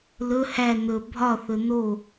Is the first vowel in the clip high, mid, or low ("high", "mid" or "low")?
mid